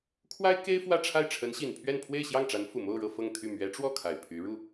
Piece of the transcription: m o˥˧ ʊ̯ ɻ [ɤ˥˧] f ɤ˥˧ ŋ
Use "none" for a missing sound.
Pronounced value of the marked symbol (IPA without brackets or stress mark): ɤ˥˧